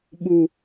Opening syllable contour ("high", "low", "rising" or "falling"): low